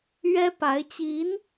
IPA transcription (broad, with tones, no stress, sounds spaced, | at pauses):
ɥ ɛ˥ p a˧˥ ɪ̯ t͡ɕ i˧˥ n